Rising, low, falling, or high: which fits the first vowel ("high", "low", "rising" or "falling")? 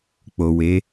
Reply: low